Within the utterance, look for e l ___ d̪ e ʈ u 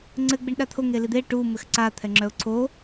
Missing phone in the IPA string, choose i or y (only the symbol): i